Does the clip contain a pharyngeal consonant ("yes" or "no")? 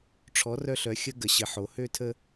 yes